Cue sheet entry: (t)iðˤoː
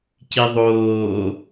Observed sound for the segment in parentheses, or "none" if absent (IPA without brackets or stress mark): c